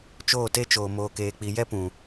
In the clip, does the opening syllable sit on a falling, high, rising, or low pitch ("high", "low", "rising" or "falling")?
falling